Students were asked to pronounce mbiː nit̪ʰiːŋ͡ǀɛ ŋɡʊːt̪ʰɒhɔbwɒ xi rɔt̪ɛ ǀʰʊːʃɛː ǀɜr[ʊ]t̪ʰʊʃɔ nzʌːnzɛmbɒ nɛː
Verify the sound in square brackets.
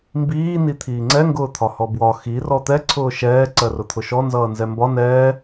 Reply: correct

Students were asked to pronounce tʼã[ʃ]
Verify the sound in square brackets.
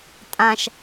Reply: correct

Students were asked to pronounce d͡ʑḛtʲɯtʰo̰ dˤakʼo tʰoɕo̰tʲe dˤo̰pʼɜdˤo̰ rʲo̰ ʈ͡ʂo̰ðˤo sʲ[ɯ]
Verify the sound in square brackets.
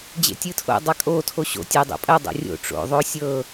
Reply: incorrect: ɤ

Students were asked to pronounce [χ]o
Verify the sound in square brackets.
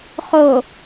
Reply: correct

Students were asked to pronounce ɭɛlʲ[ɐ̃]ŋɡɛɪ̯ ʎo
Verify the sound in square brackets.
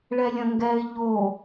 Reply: correct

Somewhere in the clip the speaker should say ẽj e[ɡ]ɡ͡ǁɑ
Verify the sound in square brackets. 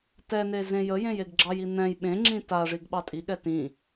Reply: correct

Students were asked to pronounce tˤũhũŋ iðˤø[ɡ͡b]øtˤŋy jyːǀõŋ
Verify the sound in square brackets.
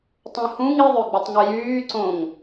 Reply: correct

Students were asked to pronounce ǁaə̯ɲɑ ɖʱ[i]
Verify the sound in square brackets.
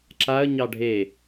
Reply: incorrect: e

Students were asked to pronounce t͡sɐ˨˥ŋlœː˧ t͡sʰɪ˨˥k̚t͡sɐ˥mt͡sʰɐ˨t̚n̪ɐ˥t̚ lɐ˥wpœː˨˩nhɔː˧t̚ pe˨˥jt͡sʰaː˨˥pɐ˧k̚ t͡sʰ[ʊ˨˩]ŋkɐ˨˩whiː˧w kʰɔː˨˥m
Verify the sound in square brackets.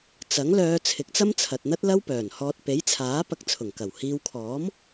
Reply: correct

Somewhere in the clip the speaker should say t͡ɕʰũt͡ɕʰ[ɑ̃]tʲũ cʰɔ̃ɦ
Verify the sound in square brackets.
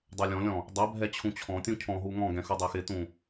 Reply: incorrect: ɔ̃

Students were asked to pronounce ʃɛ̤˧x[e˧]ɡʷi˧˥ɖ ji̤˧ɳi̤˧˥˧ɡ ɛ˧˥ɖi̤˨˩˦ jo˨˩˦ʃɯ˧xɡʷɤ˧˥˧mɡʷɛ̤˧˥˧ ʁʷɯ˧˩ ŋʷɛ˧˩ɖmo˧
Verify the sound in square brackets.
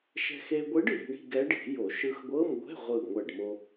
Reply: correct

